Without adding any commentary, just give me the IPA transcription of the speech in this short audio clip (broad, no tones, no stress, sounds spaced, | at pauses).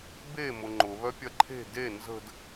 b e m ʊ ŋ͡ǃ ʊ β œ pʲ ɐ ǃʰ e̤ d e n z ə̤ d